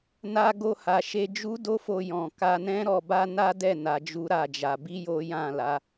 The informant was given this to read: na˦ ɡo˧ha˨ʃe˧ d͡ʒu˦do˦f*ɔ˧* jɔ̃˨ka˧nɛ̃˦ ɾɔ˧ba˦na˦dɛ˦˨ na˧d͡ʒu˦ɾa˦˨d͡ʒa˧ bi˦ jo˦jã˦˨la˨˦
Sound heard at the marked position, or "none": o˧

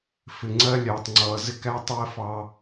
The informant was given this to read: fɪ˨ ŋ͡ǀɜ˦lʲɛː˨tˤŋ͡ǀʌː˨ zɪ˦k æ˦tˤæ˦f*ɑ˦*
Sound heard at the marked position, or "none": ɑ˦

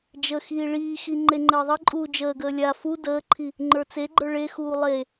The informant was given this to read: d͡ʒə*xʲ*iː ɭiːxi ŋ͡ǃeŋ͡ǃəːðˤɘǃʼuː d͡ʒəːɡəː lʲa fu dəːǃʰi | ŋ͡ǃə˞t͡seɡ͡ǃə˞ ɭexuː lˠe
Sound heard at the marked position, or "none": x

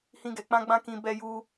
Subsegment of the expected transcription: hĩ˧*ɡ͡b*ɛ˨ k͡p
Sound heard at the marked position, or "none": ɡ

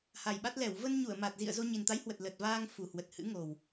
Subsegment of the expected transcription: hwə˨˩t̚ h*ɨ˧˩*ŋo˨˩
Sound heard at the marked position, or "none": ɨ̰˧˥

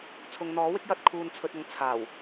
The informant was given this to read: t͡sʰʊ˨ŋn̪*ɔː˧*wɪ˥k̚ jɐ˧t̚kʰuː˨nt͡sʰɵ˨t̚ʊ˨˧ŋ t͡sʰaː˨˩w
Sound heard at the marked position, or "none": ɔː˨˥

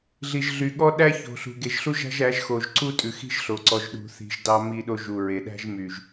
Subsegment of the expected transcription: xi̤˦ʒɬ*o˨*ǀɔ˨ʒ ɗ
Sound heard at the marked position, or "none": o˨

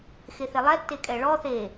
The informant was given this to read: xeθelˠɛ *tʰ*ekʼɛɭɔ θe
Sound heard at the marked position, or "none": tː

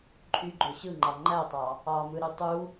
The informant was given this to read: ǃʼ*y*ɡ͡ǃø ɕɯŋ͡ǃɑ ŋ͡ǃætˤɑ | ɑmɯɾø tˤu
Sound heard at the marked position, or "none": y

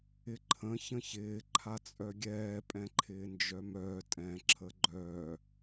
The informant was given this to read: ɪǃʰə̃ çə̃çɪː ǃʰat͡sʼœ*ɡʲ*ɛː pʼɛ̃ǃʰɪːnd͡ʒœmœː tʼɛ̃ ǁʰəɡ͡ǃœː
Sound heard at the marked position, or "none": ɡʲ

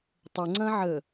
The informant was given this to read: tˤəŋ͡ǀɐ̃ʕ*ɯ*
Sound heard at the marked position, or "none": ə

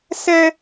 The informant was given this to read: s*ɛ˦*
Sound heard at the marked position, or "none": ɛ˦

